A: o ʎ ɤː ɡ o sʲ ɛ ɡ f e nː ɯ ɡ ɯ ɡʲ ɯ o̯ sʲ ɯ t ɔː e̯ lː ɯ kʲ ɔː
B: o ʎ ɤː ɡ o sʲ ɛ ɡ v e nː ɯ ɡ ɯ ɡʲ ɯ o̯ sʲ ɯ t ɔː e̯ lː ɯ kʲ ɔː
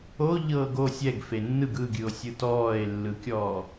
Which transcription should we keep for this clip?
A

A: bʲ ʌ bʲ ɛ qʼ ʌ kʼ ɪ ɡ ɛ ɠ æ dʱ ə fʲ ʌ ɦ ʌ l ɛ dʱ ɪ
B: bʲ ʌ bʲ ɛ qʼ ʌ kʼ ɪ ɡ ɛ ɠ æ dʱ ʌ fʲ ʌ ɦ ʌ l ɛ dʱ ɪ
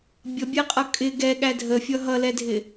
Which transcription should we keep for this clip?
A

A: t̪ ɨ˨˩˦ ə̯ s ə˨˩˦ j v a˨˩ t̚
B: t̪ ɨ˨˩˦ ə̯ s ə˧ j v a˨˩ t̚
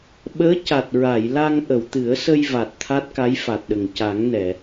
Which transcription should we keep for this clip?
B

